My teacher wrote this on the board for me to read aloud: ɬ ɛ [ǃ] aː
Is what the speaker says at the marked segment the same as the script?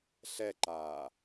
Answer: yes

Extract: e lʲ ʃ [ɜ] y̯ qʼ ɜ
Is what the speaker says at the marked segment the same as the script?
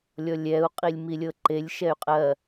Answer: no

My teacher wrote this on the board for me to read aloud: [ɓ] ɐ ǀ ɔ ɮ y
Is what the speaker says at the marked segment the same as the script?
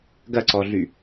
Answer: no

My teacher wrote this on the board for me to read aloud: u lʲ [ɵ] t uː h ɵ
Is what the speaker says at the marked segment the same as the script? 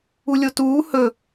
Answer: no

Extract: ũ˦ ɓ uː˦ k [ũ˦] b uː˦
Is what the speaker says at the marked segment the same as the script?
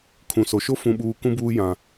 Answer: yes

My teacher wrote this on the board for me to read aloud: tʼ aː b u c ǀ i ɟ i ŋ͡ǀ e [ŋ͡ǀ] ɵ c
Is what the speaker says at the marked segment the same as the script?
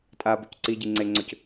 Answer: yes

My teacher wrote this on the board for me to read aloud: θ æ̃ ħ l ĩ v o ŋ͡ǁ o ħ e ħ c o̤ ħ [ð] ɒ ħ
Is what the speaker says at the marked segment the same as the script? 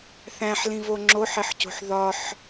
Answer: yes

